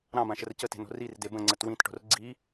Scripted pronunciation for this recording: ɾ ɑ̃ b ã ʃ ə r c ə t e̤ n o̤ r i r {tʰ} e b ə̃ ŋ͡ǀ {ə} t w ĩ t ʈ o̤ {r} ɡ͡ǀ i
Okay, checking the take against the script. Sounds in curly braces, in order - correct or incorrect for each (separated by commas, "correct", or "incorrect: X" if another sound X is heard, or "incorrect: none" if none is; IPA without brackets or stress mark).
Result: incorrect: d, correct, correct